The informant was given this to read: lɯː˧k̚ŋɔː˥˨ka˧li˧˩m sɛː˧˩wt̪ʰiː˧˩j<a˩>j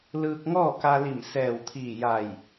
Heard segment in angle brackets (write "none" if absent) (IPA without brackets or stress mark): a˧˩